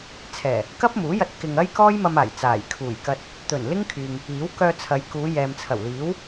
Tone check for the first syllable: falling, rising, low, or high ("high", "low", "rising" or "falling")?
low